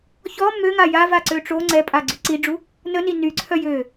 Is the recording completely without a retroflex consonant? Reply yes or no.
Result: no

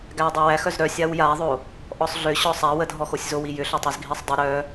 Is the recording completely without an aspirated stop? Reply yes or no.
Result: yes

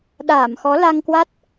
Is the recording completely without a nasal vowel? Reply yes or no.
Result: yes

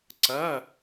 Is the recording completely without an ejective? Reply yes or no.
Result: yes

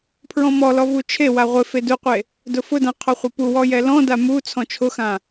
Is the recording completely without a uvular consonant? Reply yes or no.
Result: no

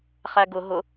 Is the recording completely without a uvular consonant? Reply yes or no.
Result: no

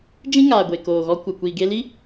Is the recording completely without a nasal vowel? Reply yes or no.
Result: no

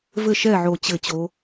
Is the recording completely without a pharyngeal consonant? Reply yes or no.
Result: no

